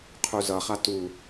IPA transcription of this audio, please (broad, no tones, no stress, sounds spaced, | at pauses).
qʰ u z ʌ χ a t u